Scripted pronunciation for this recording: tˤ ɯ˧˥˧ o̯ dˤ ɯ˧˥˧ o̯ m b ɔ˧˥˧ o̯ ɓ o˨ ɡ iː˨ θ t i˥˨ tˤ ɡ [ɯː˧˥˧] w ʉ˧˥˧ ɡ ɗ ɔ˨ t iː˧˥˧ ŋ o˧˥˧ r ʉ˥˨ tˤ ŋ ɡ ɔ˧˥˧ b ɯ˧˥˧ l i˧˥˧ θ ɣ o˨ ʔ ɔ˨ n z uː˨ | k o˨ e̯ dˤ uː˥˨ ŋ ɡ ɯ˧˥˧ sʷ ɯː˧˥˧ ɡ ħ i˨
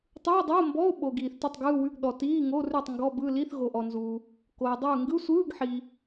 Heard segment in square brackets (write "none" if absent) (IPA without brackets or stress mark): ɯː˧˥˧